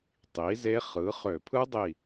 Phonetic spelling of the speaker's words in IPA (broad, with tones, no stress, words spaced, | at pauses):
tˤi˩˥ze˦˥χɯ˩˥χø˧˩˧ pʰɯ˦˥dˤi˧˩